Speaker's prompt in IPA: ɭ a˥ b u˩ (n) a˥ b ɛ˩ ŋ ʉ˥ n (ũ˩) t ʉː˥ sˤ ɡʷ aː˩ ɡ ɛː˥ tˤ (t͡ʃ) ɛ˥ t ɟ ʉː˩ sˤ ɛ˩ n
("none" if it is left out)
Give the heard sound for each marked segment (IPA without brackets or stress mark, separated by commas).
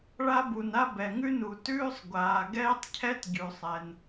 n, u˩, cʰ